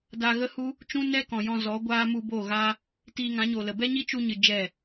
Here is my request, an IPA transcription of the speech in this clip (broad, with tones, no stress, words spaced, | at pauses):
da˧ɣə˦hu˦ | t͡ʃũ˦nɛ˦kɔ̃˨ jɔ̃˧ zɔ˨˦ɡʷaː˦ mu˧ bo˦˨ɣaː˦ | tiː˧ŋã˨˦ɲo˨lə˨ bɛ˦ɲi˦t͡ʃu˧ɲɨ˨ d͡ʒɛ˦˨